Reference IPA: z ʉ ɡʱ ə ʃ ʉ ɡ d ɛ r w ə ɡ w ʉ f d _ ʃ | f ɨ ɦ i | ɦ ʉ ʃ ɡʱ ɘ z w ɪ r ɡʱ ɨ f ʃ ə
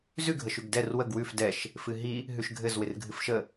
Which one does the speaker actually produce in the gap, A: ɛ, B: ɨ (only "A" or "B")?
A